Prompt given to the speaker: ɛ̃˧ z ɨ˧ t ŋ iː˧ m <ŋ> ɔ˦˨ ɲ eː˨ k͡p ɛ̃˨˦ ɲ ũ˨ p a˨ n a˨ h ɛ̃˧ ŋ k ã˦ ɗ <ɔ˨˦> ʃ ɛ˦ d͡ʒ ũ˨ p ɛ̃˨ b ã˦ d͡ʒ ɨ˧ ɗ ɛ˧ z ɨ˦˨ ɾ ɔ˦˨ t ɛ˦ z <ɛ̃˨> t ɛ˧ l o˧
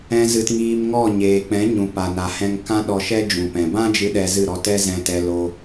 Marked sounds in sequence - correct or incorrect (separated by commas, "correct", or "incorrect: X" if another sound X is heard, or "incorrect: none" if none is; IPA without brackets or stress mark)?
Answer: correct, incorrect: ɔ˧, incorrect: ɛ̃˧